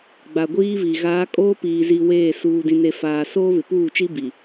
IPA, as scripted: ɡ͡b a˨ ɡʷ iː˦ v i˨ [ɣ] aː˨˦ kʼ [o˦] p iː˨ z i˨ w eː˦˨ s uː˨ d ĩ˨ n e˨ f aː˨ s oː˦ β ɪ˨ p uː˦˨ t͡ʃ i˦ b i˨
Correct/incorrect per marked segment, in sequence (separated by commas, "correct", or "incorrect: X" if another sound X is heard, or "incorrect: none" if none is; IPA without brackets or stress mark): correct, incorrect: oː˦